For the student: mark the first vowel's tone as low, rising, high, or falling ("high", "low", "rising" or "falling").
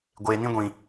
low